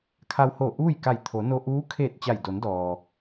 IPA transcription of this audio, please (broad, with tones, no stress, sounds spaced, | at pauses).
kʰ a˧ w h o˧˩ ʔ uː˥˨ j k a˧˩ j t̪ʰ o˩˧ n o˧ ʔ uː˧˥ kʰ e˧˩ t̚ t͡ɕ a˧˩ j d o˩˧ n d ɔː˩